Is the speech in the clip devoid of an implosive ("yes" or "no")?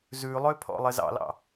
yes